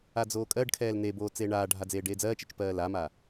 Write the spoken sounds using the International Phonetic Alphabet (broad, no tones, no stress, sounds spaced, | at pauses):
a d͡z oː kʼ ɜ ɖ kʰ ɛː l n e b oː t͡s eː ɳ aː ɖʱ a d͡z eː ɖ eː d͡z ɜː t͡ʃ ɛ t͡ʃ p ɜː l a m aː